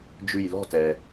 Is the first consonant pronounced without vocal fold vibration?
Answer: no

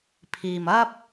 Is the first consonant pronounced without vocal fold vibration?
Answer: yes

